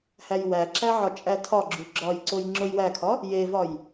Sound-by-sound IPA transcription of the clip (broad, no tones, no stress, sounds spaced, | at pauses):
h æ j w æ ǁ æ ʕ ɒ t͡ʃʼ æ tʰ ɒ ɡ͡ǁ u ɡ͡ǁ ɒ j ǀ o j ŋ͡ǁ o j w æ kʰ ɒ | j e v ɒ j